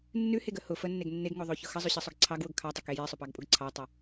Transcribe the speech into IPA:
nː ʉ h e ɡ ə h ʊ f ə nː e ɡ nː e ɡ ŋ o ðˤ o ç ʊ x ə zˤ ʉ ɕ ə sˤ ʊ ɡ ǀʰ ɑ ɡ w ʊ ɡ kʰ ɑ tˤ ə k e j e sˤ ʊ p ɑ ɡ pʼ ʊ ɡ ǀʰ ɑ tˤ o

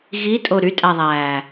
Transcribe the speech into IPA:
ɣ i tʼ o ɾ y tʼ æ ðˤ æː

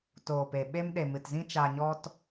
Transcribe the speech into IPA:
t oː˨ p e˨ ɓ e˦ m ɗ e˨ m ɨ˨ t z ĩ˦ t͡ʃ a˧ ɲ ɔ˦ t

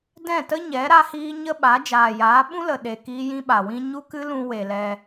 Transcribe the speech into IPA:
d ɛ̃˦˨ t ə˦ ɲ ɛ˨˦ ɾ a˦ h iː˦ ɲ ə˦ ɓ a˨˦ d͡ʒ aː˨ j aː˨˦ ɓ ũ˦ l ə˨ ɗ e˨ k iː˦ j ĩ˦ ɓ a˨ w ĩ˦ ɲ u˦ k ɨ˦ l ũ˧ w e˨ l ɛ˧

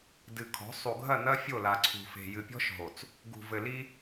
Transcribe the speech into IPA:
d ɨ˨ kʰ ɔ̤˨˦ sˤ u˨ ɡʱ ɐ˦˨ n ɐ˦ fʲ o˦˨ l a˨ ǀʰ ṳ˨ f e̤˨ j ɨ˨ pʲ ɔ̤˦ ʃ ɦ o˨ t͡s | ɡ ṳ˨ v ɘ˨ l i˦

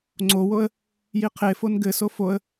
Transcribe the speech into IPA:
ŋ͡ǀ o w o ə̯ | j i qʰ e f o n ɡ ɘ s o f o ə̯

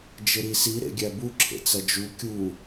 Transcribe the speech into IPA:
d͡ʒ ɪ ɾ i s i ɾ ḛ ɡʲ æ b u ǁʰ ḛ t͡s ɐ d͡ʒ u kʲ u

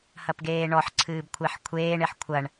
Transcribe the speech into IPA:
h ɐ p ɡ eː ɳ ɔ ħ ǀʰ ɨː b kʷʰ e ħ kʷʰ eː ɳ e ħ kʷʰ ɐ ɳ

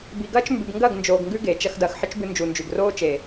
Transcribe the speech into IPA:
b i˨ ɡ ɐː˦ t͡ʃ m b ʉ˨ b ŋ ɡ ɐ˦˨ ɡ n d͡ʒ oː˨ ɡ ŋ ɡ ʉ˦ ɡ eː˨ t͡ʃ ɐ˦ x d ɐː˨ x ħ ɨ˦ t͡ʃ b ɨ˦ n d͡ʒ u˨ n d͡ʒ ʉ˨ ɡ r oː˦ t͡ʃ eː˨

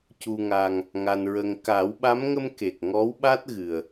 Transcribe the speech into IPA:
c u˨˩ ŋ a˨˩ ŋ | ŋ a˨˩ n ɹ ə˨˩ ŋ k a˨˩˦ w ɓ a˧˥ m ŋ ə˧ m k e˨˩ k̚ ŋ ɔ˧˥ w ɓ a˦˥ t̚ ɣ ɨ˨˩ ə̯

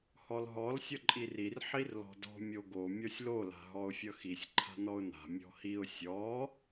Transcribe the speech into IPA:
h ɔ l ɦ ɔ l sʲ ʌ ǃʼ i r i r ħ i r l ɔ̤ d ɔ̤ mʲ o ɡ o mʲ ɔ sʲ l o l a̤ ɦ ɔ ʊ̯ fʲ ʌ x i sʲ ǃʰ a̤ n ɔ ʊ̯ n a̤ mʲ ɔ̤ h i ʊ̯ sʲ ɔ

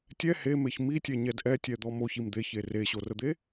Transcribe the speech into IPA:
tʲ ɛ h e m e ç m i tʲ ɛ ɲ ɛ d ʔ ɛ tʲ ɛ d̪ ɔ m o ç i m d̪ e ç e r e ɕ o r ə d̪ e

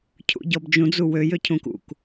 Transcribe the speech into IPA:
cʰ ṵ ɟ ɔ b d͡ʒ ũ d͡z u w ø j ø cʰ ũ k ṵ k

